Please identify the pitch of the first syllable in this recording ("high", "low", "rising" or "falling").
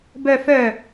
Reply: low